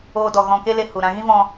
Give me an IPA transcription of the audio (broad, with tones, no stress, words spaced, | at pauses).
oː˧dɔ˨ ɣɔ̃˨ke˧ le˧hu˨ɾã˧ ɣĩ˦vɔ̃˧